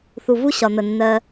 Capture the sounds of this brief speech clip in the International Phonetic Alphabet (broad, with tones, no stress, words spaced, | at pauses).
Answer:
θu˨vu˦ ɕɒ˨n̪ə˨ nːɜ˧